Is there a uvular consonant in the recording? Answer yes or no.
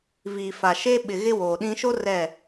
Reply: no